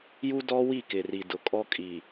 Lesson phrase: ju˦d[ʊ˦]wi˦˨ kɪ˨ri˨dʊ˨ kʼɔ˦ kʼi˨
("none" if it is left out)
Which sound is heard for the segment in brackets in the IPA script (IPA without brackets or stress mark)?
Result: ɔ˦